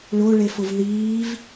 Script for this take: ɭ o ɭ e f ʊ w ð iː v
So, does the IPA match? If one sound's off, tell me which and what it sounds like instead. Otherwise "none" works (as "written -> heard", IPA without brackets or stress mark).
w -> v